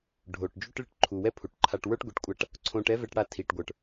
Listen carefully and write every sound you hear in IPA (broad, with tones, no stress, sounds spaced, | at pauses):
ɖʱ o˩ ʈ d͡ʒ u˥ ʈ ɭ i˧ ʈ ǃʰ u˩ w ɛ˥ pʰ u˩ ʈ ǃʰ a˧ ʈ w ə˞˥ ʈ ɡʷ i˩ ʈ kʷʼ a˧ ʈ | ǀʰ õ˧ ʈ ɛ˥ v ɛ˧ ʈ ɽ a˧ tʰ i˩ ʈ ɡʷ ə˞˩ ʈ